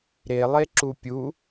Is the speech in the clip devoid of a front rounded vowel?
yes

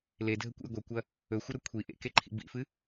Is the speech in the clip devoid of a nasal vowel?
yes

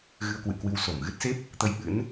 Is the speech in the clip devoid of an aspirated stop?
yes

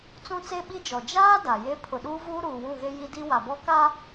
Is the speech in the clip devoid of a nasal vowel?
no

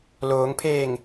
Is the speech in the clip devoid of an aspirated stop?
no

